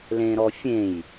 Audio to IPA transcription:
lẽɾɔfʲẽj

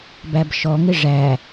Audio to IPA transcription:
bæbʃɔŋɪ ʐæ

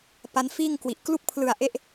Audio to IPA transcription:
pa˦˥nfiː˥˩ŋkwi˨˩ʔ klu˥˩k̚pʰlɯ˨˩a̯ʔe˦˥ʔ

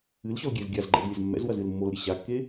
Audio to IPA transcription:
ɨlɕɔl ɡʲɛz ɡʲazɡ͡ǃɛ̰z lʲɘzmːɛ̰zwɐz ɨlmːolɾʲɨ ɕakːe

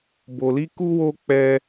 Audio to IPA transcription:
bo˧li˦ ku˦wo˦ k͡pɛ˦

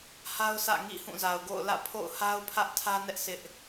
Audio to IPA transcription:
ha˦ʊ̯sʰä̰˦˨ŋḭ˦˨ hũ˦˨za˨ʊ̯ɡo̰˦˨ʊ̯ lä̰˦˨pʰo̰˦˨ʊ̯ ha˦ʊ̯pʰä˦ʔtʰä˦nɛ˦ʔ sʰɪ˦ʔ

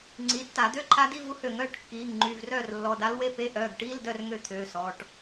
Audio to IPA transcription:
ŋ͡ǀi˩˧˩tːa˧˩˧d̪ø˧˥˧ ǃʰa˧˥di˧˥˧vu˧˥hø˧˩˧ŋ œː˩˧˩ʈkːiː˩˧˩ŋ ŋ͡ǃy˩˧˩vrœː˥˨rlːɔ˩˧˩ da˧˥lwe˧˥˧pe˧˥˧ ʔœː˩˧˩ɡʈiː˧˥˧ldœ˥˨r ŋø˥˨t̪ʰøː˩˧˩sɔ˩˧˩ʈ

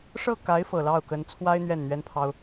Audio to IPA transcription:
ʂɤ˥˩ka˧˥ɪ̯ fɤ˨˩lɑ˥˩ʊ̯kə˧˥n t͡sʰwa˥ɪ̯ n̪ɥɛ˥˩nn̪ɥɛ˥npʰɑ˥ʊ̯

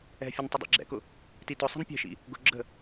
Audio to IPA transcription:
ɛ̤fʲʊn tˤədˤɛ̰ɡ͡ǁɛ̰kʊ | titʊsˤi̤n pʲɛ̤ʃḭ | ɡʊ ɡ͡ǁə̤

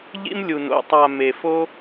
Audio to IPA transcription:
ʎḭ˦mlʲu˨no̰˨ tˤa˨ me˨fo˦

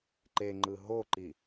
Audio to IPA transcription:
ǃeŋ͡ǃɯ ɦoǃi

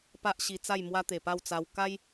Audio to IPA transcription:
pa˦ʔɕi˧t͡sa˥˧j mwa˧ t̪e˨˩pa˥˧wt͡sa˧w ka˦j

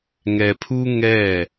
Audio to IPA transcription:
ŋɛ˨pʰu˦ ŋɛ˦˨

